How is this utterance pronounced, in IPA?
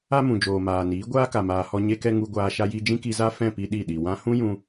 a˦ m ũ˨ d͡ʒ oː˨ m aː˨ n iː˨˦ ɡʷ aː˦ k a˨ m aː˨ h ɔ˧ ɲ e˧ k ɛ˧ ŋ u˧ ɡʷ aː˧ ʃ a˧ j i˧ d͡ʒ ĩ˦ k i˧ z a˦ f ɛ̃˦˨ p i˧ ɗ i˦˨ ɗ i˨ w ã˧ h ũ˦ j ũ˧

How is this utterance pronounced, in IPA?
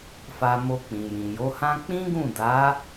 f a˧ m o˧ k͡p ĩ˨ j ĩ˨ j o˨˦ h ã˦ k͡p ĩ˦ ɡ ũ˦˨ d a˨˦

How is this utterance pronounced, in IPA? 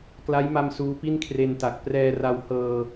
k l a˦˥ j m a˧ m s uː˦˥ p i˥˩ n kʰ r e˧ n t a˨˩ k̚ p r ɛː˧ r a˧ w h ɤː˧

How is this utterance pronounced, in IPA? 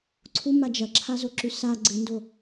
ǀʰ u m a d͡ʒ ɐ ǁʰ a z o ǁ ʉ s a ɡ͡ǀ ɨ n d o

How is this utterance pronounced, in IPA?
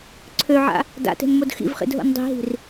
ǀʰ ø ʕ a̰ | d a̰ t e̤ n m o d x ḭ v χ ḭ d ɦ o̰ n dˤ i̤ ɦ i̤ r

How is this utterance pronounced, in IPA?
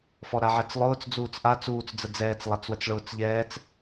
f ɔ ɾ a ʕ ɛ t͡s lˠ ʊː t͡s d͡z uː t͡s ʔ a t͡s uː t͡s d͡z ə d͡z ɛː t͡s lˠ a t͡s w ə t͡s ɭ ʊː t͡s ʎ ɛː t͡s

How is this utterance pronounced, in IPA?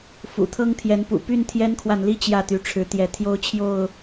f ṵ˨˩ t̪ʰ ɤ˦ ŋ t̪ʰ j ɛ˨˦ n p ṵ˨˩ p y˥˨ n t̪ʰ j ɛ˦ n kʰ w a˨ n l i˥˨ t͡ɕ j ä˥˨ t̪ y˨˦ ʈ͡ʂʰ ɻ̩˨˦ t̪ j ɛ˨˦ t̪ʰ j o˦ ʊ̯ t͡ɕʰ j o˥˨ ʊ̯

